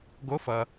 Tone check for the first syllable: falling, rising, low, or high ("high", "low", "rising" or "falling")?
rising